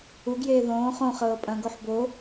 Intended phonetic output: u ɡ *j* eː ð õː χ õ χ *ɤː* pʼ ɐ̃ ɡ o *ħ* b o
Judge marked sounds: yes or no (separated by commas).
yes, yes, yes